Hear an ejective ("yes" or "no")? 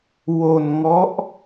no